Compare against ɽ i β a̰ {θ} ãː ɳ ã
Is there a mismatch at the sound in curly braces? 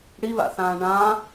no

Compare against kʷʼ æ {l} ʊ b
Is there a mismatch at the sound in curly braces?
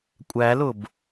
no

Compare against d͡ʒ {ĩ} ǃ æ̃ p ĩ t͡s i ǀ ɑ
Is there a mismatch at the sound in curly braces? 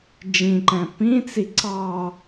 no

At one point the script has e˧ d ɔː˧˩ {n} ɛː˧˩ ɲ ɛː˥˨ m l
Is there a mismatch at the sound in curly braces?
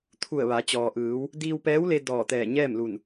yes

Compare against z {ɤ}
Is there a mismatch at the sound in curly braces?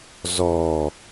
yes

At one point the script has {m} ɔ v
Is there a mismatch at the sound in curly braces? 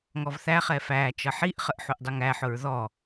yes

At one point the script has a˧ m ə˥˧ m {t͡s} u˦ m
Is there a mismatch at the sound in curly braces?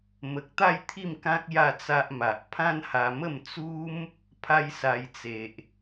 no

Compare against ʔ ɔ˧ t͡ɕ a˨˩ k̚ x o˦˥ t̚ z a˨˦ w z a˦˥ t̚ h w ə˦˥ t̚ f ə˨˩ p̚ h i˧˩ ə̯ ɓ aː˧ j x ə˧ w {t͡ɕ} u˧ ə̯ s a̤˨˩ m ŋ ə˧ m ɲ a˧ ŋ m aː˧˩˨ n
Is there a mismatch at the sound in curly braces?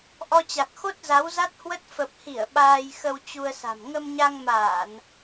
no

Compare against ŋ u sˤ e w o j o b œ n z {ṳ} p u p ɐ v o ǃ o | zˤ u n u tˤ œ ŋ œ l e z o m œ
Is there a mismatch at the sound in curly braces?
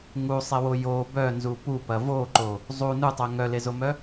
yes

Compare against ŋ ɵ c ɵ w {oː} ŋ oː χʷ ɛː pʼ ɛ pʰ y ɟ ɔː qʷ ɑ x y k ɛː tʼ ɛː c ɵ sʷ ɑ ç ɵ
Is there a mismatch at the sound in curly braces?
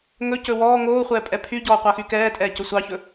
yes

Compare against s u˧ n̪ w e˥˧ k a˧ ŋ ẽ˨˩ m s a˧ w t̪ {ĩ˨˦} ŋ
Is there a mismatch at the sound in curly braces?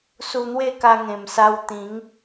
no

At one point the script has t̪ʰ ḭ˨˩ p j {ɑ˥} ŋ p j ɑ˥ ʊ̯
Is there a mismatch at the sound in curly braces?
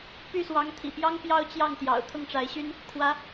no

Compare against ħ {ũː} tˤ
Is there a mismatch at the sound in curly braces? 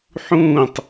no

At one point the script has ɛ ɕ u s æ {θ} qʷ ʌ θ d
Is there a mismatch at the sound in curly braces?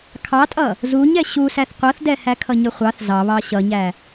no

